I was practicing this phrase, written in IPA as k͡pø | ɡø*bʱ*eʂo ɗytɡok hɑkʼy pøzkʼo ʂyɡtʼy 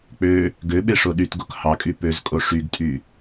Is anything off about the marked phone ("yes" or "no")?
yes